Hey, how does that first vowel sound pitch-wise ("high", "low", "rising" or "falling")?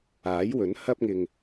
rising